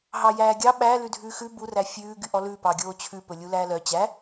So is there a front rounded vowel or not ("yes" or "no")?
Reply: yes